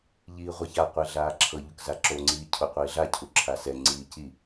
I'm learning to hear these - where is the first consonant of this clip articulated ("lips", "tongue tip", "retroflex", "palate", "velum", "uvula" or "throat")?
palate